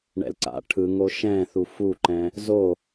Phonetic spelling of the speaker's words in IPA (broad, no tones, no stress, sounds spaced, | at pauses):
ɳ ɛ̰ l ǀ a̰ ʈʰ ɯ ŋ o ʃ ɛ̃ θ u f u ǃ ɛ̃ | z o